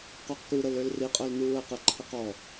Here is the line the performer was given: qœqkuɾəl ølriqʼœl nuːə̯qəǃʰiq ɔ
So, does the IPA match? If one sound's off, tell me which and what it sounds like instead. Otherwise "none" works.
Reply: none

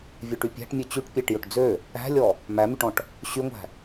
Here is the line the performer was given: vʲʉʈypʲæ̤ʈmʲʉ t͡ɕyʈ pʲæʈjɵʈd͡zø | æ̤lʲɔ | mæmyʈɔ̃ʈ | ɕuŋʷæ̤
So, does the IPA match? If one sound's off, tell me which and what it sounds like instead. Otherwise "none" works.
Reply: u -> y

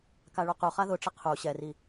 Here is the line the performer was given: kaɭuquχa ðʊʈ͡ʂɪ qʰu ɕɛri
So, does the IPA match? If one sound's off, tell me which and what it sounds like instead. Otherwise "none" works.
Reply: none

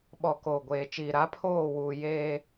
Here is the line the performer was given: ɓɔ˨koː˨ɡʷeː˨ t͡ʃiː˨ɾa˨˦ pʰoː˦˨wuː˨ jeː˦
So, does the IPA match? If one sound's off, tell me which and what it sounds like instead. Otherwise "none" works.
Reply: none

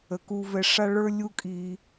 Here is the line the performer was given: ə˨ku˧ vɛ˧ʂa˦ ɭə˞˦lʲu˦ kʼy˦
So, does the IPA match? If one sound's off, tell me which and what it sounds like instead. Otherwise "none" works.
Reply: y˦ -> i˦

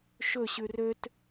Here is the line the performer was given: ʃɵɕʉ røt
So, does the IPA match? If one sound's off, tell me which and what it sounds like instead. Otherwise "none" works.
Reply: none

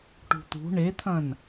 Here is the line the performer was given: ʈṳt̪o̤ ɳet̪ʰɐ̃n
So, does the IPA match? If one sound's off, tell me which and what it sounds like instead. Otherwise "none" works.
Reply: o̤ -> ṳ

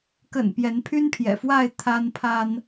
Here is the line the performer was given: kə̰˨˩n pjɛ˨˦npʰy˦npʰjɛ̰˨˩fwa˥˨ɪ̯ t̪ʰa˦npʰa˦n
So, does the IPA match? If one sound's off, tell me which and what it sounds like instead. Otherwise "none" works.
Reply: none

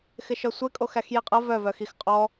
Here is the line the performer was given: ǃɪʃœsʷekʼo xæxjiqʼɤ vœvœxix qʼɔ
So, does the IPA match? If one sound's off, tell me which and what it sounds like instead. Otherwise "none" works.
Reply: ǃ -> x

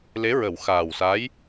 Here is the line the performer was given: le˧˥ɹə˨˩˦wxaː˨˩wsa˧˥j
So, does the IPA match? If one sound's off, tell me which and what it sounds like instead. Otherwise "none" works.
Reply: none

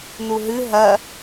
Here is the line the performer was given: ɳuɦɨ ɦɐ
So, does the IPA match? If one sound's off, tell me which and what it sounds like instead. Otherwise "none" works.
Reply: ɳ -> n̪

